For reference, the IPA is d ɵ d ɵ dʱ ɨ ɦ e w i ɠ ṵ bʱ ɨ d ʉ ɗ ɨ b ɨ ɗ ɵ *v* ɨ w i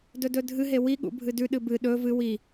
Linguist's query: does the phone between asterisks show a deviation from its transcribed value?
no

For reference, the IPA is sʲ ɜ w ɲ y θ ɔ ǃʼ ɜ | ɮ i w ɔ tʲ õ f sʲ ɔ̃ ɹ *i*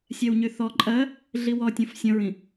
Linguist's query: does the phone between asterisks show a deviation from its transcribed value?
yes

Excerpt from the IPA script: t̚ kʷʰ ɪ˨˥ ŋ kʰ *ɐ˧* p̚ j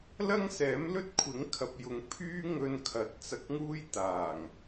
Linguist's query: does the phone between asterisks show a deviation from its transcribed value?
yes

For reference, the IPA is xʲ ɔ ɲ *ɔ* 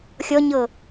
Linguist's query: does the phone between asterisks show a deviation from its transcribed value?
yes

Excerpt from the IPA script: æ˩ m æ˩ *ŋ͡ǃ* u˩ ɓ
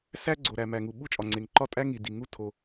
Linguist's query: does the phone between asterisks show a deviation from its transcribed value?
yes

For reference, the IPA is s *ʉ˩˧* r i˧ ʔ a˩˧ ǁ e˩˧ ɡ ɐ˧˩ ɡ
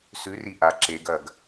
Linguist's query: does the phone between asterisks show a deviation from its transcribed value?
yes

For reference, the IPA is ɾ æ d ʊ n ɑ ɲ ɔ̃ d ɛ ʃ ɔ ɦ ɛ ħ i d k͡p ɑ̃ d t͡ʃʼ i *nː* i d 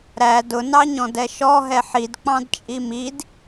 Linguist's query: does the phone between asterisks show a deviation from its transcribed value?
yes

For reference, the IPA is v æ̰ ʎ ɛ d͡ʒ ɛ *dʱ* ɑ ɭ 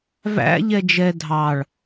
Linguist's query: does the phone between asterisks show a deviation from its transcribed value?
no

